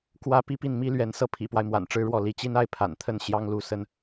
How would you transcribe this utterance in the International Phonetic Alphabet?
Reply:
kwä˥ pi˥pi˥˩nmi˥lɥɛ˧˥n sɤ˥˩pʰḭ˨˩pwa˦ɪ̯ mwa̰˨˩nʈ͡ʂɻ̩˥ɻwɔ˥˩ li˧˥t͡ɕi˥na˥ɪ̯ pʰa̰˨˩nt̪ʰə˥˩n ɕjɑ˥ŋlu˧˥sə˥n

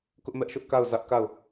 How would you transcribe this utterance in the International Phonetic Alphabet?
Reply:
kʊ˦ʔmɛ˦ʔʃʊ˦ʔ ka˦˨ʊ̯zä˦ʔka˦˨ʊ̯

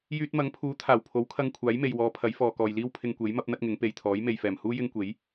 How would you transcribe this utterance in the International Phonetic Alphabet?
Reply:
jyː˧t̚mɐ˨˥ŋpʰuː˨˥ t̪ʰaː˨˩wpʰo˨˥wkʰɐ˧ŋ kʷʰaː˨˥jme˨jwɔː˨˧ pʰɐ˨˥jfɔː˨kɔː˨jliː˥w pʰɪ˧ŋkʷe˨˥j mɐ˥p̚n̪ɐ˥t̚ŋɪ˨˥ŋ pe˨jt̪ʰɔː˨˥j me˨jfɛː˨˩mhuː˥ jɪ˥ŋkʷe˨˥j

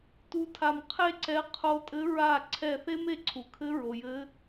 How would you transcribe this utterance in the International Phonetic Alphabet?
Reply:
tu˧˥tʰa˧˩m qʰe˥ǀɛ˧˥ qʰo˧˥tʼɘ˧˥ ɹa˧˩ ǀʰɛ˧˩θe˥m e˥˩ǀʰu˩kʰɘ˧˥ ɹo˩jɘ˧˥

